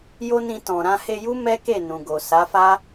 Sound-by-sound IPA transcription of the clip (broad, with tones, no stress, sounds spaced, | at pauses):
j o˦ n ĩ˧ t ɔ̃˨ ɾ ã˧ h e˧ j u˦ m ɛ˦ k e˦˨ n ũ˨ ɡ o˨ s a˨˦ f a˦